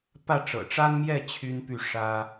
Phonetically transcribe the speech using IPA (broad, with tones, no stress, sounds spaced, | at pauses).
p ä˥˩ ʈ͡ʂ ɤ̰˨˩ ʈ͡ʂ a˥ n m j ɛ˥˩ t͡ɕʰ y˥ n p y˥˩ ʂ ä˥